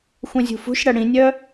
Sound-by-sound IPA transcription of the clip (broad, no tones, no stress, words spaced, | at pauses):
xʷœ̃zʲṳfṳʃɽɐ ɽĩnʲœ